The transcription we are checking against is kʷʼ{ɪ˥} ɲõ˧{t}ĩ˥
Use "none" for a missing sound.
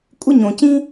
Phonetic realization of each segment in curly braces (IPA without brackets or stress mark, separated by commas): ɪ˥, c